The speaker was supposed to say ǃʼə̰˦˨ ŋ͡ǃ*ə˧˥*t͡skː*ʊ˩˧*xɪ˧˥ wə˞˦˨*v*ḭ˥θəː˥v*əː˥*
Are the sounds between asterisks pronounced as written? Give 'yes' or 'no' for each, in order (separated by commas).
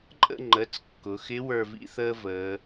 no, yes, yes, no